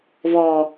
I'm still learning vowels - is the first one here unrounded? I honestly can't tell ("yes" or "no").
no